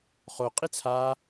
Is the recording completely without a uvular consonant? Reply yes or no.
no